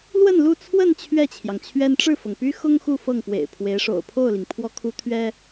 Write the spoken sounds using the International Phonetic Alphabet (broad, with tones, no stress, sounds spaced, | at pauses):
l w ə˥˧ n l u˥˧ t͡sʰ w ə˥˧ n t͡ɕʰ ɥ ɛ˥˩ t͡ɕʰ j ɑ˩ ŋ t͡ɕʰ ɥ ɛ˥ n ʈ͡ʂ ɻ̩˥˩ f ɤ˩ ŋ p y˥ x ʊ˥ ŋ x u˥˧ f ɤ˥˩ ŋ p w ḛ˨˩ ɪ̯ pʰ w e˧˥ ɪ̯ ʂ o̰˨˩ ʊ̯ pʰ o˥˩ ʊ̯ l i˩ ŋ pʰ w ɔ˥ kʰ u˥ t̪ʰ ɥ ɛ˥